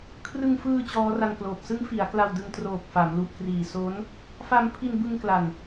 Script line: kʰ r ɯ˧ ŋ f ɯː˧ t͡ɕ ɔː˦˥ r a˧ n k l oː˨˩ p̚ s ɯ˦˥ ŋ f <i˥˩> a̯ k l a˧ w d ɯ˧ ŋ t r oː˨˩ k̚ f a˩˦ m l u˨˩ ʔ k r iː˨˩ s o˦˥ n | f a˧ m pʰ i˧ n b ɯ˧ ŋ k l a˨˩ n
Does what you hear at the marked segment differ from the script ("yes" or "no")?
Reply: yes